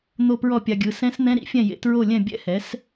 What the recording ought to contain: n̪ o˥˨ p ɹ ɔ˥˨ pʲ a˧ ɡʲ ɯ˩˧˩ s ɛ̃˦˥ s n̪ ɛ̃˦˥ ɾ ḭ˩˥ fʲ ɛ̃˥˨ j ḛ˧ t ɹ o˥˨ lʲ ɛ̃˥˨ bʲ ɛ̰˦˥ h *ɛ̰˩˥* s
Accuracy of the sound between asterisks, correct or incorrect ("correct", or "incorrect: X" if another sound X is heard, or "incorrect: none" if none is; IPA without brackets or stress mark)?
incorrect: ɛ˩˥